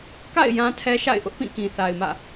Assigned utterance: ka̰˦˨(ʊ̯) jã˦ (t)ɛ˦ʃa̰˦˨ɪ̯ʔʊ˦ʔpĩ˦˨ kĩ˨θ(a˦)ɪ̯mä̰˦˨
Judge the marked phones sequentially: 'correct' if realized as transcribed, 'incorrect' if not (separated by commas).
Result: incorrect, incorrect, incorrect